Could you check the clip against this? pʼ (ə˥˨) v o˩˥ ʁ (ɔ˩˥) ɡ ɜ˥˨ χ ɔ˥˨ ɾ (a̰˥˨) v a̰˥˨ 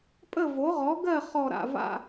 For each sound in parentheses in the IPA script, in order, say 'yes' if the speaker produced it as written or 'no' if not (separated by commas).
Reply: yes, yes, yes